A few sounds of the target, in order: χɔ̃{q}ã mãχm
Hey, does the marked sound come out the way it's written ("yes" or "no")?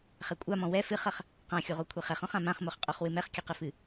no